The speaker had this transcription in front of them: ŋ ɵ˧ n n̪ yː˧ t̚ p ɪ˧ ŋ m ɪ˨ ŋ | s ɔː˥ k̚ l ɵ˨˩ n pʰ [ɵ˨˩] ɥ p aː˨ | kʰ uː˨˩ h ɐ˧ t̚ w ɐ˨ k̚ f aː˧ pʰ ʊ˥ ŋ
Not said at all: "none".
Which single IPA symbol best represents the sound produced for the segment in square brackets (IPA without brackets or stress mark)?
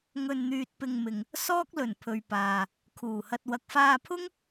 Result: ɵ˨